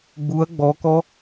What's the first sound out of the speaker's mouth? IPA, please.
ɡ͡b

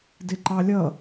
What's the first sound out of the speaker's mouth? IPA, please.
d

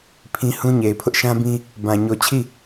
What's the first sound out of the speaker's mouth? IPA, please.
pʰ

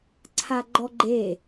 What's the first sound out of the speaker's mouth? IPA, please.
ǀʰ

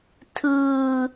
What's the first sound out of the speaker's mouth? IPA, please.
tʰ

